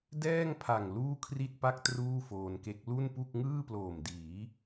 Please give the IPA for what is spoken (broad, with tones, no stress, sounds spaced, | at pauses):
d ɛː˥˩ ŋ pʰ a˨˩ ŋ l uː˥˩ kʰ r i˥˩ t̚ p a˥˩ k̚ t r uː˥˩ f oː˧ n k e˦˥ k̚ l u˥˩ n p u˥˩ k̚ ŋ ɯː˥˩ p l oː˨˩ m d iː˩˦